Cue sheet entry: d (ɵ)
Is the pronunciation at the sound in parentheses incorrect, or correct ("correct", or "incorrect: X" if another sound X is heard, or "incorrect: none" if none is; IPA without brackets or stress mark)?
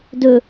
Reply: correct